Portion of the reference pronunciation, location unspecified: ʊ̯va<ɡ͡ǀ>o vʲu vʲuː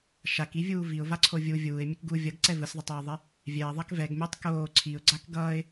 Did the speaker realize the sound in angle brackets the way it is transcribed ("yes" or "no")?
no